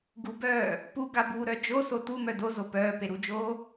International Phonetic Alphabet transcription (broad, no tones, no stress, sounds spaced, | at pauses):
ɡ u b œː | p u ɡ a b uː ɾ œ d͡ʒ o s o t u m œ d o z o p œː p e ɾ u d͡ʒ oː